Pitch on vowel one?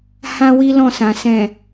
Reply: high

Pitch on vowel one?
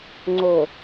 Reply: low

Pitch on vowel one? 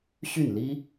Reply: falling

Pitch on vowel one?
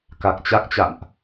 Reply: low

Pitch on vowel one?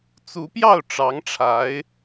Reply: rising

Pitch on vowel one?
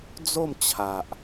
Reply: falling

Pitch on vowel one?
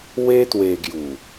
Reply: high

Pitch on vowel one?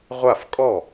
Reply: falling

